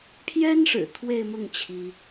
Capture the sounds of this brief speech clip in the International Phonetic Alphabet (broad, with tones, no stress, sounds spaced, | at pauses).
pʰ j ɛ˥ n ʂ ɻ̩˨˩ t̪ʰ w e˥˧ ɪ̯ m ʊ˥˩ ŋ t͡ɕʰ i˥